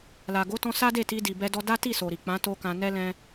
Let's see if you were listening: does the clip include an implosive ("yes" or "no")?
no